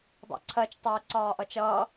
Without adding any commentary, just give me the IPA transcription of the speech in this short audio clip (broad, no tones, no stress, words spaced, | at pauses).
dˤɛ̰ǀʰɜt͡ʃ tˤɛ ǀɒːʔʌt͡ʃʌː